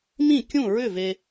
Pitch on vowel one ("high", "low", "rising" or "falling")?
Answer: falling